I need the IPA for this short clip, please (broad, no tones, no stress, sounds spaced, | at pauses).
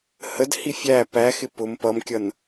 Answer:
h ə d h i fʲ æ p æ x ɪ p ʊ m p ʌ m kʲ ʌ n